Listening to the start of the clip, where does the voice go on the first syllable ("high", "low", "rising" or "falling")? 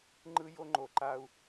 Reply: high